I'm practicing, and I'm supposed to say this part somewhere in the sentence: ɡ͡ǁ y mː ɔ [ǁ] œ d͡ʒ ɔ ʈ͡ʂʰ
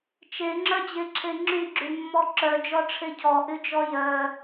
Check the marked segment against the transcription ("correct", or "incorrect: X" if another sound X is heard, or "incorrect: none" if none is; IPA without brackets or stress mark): correct